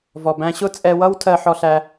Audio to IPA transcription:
vɔ˨bæ̃˧ ɕʊ˦t͡sʼɛ˧wʌ˦w tʰɜ˧ħɔ˧ɬæ˧

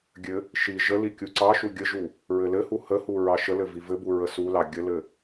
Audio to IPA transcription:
ɡʲɘ | ʃi ʒəli kʲuǀɑʃu ɡʲəʒu | ɹɘlɘhu həhu ɹɑʃəlɘ vivɘbu ɹəsulɑ ɡʲəlɘ

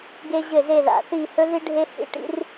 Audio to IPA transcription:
ɡe˥ʑɘ˥˨ze˥˨ ða̰˨θi˥˨ hɵ˥ði˥ ɖʱe˥hḭ˥˨ ʈḭ˥r

